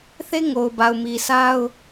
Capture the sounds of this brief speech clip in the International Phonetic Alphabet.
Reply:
θ e˦ ŋ o˨ ʊ̯ b a˨ ʊ̯ m i˨ sʰ a˦ ʊ̯

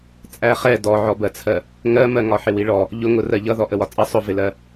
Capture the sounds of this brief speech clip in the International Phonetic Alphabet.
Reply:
t͡sʼ æ χ ɛ d ɔ ʕ ɔ b ɜ t͡sʰ ɜ | ŋ ɜ m ɜ ŋ ɒ ħ ɪ w i ɭ ɔ | ʎ ʊ ŋ ʊ r ɜ ʎ ʌ ð ɔ ʔ ə w ɒ t͡sʼ ʌ sˤ ʊ v ɪ l ɜ

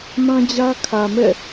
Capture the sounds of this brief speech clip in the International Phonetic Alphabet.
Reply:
m ã˦ d͡ʑ ä˦ kʰ ä˨ m ɛ̰˦˨

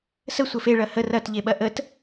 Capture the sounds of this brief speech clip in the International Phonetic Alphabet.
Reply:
s ə sʷ ə f e ɭ ɐ h ə r ɐ t ʎ e ɓ ɐ ʔ ə t

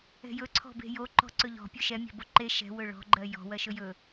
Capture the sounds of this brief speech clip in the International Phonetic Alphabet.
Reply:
ɛ̤ j ɵ ǀʰ ɔ̤ b e̤ j o ǃ ɔ̤ ǀ ɵ ʎ ɔ̤ pʲ ɵ ʃ ɛ mʲ ɛ̤ b o ǃ e ʃ ɛ̤ w ɵ ɭ ɔ̤ ɡ͡ǃ ɜ j ɔ̤ w ɜ ʃ ɵ j ɵ

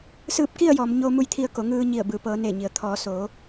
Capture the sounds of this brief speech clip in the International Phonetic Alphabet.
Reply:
s ɯː˧ p̚ k i˥˨ ə̯ j ɔː˩˧ m ɲ oː˧ m u˧ j t̪ʰ i˧ ə̯ k o˩˧ ŋ ɯː˧ ɲ i˧˩ ə̯ b ɯː˩ p ɤː˩˧ n eː˧˩ ɲ i˩ ə̯ t̪ʰ ɔː˩˧ s oː˩˧

